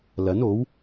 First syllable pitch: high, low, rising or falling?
rising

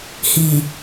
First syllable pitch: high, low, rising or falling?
low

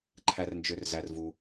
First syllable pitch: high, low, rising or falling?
low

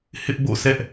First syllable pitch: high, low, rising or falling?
high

